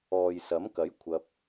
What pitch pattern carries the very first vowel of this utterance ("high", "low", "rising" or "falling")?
low